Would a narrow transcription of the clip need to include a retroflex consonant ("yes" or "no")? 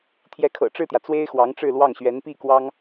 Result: yes